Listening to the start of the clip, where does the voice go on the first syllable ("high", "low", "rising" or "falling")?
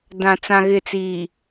low